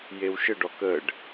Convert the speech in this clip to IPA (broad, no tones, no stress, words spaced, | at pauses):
jewʃəɖɔ kəɖ